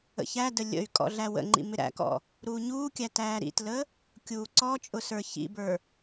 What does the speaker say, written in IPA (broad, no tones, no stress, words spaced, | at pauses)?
ə̰çædə lʲə̰y̯ kʼɔ̰ɮæwə̰ŋ͡ǃḭ mɪɾæ̰kɔ̰ | ɾuːɲuːkʲæ tæːɾḭtlə | kʲuːǀɔt͡ʃʼʊ sə˞çḭbə˞